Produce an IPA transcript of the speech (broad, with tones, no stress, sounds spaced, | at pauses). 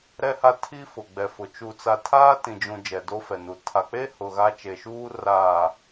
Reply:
ɾ ɛ˦ h a˦ tʰ i˦ f ʊ˨ ɡ͡b ɛ˨ f ʊ˨ t͡ʃ u˨ t͡s a˨ tʰ aː˦ t ĩ˨ d͡ʒ ũ˨ d͡ʒ ɛ˨ d o˦ f ɛ˨ n u˨ tʰ a˨ k͡p e˦ h ʊ˨ ɣ a˦ t͡ʃ e˨ ʃ uː˦ r aː˨